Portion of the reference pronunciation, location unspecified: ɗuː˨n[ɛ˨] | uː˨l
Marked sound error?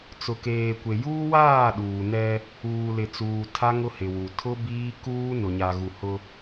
yes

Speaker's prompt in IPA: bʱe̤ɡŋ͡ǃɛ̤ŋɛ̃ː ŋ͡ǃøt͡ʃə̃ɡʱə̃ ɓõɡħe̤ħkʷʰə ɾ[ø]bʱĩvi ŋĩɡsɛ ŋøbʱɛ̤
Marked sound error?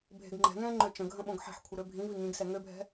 no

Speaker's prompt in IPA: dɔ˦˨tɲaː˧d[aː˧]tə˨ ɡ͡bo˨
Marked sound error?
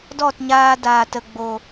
yes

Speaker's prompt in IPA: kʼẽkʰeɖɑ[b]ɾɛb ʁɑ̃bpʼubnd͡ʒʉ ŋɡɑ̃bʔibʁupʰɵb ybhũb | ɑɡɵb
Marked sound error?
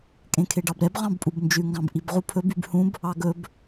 no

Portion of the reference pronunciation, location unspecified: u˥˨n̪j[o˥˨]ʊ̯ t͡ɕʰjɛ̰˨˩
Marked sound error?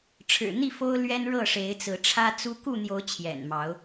yes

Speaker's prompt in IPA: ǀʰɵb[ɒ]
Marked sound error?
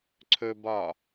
no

